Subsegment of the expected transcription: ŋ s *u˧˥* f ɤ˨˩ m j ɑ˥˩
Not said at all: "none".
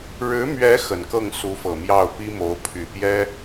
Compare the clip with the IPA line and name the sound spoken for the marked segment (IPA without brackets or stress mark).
u˧˥